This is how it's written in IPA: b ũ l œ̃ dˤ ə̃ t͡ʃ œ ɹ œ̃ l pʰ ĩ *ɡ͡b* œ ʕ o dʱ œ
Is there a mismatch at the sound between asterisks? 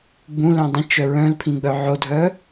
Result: no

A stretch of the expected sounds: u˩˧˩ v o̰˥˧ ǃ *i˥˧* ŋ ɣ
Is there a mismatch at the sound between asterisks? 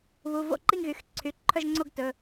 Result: no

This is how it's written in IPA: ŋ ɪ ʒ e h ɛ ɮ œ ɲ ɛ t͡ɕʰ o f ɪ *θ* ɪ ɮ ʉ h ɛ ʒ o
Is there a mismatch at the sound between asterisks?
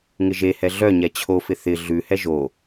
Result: no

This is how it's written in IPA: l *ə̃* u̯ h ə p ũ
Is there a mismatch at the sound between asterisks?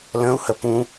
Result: no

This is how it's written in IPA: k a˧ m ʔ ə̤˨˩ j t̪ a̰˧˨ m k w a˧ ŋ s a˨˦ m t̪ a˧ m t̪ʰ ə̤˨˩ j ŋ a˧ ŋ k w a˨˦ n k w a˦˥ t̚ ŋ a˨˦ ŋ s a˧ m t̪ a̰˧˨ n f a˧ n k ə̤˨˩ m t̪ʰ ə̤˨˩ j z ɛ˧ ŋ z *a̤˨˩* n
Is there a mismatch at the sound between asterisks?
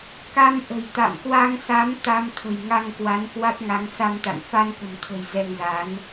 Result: yes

